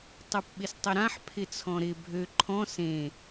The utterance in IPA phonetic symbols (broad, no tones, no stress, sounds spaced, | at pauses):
tˤ y p ɓ ɪ s tˤ ɪ ɾ ã ħ pʰ ɪ t͡sʰ ɔ̃ ɾ ɪ bʱ ø ǃʰ ɔ̃ s ẽ